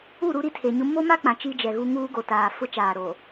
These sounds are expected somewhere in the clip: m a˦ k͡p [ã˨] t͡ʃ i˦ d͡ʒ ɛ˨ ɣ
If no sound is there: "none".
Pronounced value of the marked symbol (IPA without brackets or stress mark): ã˨